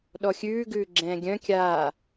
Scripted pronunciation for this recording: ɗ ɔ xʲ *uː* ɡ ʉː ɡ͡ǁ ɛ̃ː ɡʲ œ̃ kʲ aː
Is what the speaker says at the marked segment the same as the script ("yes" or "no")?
no